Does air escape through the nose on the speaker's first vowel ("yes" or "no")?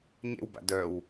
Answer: no